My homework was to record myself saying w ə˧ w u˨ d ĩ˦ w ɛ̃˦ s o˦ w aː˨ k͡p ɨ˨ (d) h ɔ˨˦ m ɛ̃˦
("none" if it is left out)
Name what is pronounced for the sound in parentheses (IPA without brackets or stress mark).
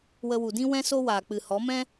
none